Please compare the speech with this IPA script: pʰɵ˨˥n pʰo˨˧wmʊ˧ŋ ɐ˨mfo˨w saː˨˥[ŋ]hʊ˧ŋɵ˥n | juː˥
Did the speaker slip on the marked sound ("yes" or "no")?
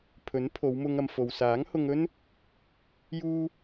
no